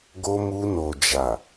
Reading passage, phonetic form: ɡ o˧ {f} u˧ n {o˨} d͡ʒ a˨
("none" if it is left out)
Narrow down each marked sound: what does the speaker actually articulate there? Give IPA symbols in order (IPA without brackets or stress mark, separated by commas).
m, o˨